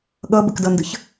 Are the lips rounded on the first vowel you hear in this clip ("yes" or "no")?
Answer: no